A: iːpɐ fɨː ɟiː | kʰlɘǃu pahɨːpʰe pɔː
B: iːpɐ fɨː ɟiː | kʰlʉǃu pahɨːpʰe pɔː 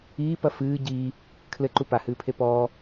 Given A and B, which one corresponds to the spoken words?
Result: A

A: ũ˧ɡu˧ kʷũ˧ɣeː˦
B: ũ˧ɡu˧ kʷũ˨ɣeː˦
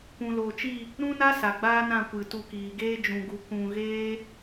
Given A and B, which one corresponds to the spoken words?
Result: A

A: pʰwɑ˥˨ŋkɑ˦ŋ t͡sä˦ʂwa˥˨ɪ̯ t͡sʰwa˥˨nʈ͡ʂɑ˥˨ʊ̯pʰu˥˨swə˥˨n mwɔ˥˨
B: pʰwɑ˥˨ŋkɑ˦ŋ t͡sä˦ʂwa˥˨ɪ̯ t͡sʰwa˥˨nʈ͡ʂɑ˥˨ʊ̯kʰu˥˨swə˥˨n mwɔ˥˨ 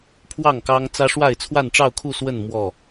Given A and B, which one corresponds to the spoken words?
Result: B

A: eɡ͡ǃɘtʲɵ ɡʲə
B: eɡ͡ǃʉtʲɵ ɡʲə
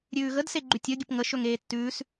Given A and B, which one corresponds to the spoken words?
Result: B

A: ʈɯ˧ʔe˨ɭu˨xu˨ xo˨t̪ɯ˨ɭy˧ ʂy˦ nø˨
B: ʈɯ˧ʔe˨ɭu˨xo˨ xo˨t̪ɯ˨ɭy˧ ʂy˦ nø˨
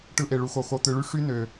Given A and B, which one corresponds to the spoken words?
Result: B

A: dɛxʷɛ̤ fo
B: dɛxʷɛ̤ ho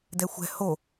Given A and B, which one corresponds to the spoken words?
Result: B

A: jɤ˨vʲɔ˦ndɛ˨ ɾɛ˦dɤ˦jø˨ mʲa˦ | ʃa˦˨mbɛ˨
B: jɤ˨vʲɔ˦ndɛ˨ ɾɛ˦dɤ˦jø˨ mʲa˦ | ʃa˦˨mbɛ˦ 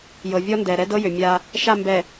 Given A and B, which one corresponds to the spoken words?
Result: A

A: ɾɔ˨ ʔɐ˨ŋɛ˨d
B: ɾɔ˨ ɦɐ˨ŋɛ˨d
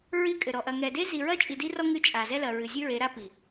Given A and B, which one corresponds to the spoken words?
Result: A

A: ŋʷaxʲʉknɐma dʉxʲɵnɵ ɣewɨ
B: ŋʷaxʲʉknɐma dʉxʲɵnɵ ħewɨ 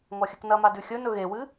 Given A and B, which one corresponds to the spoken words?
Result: A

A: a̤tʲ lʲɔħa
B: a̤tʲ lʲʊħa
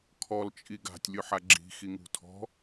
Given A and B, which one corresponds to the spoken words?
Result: B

